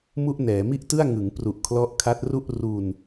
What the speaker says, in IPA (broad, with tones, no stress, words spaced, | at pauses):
mu˥˩ʔnɛː˩˦ mi˥˩ʔtɯ˥˩a̯ŋɯ˩˦ŋpru˨˩ʔ kʰlɔ˦˥ʔkʰa˦˥t̚ru˥˩ʔ ru˧n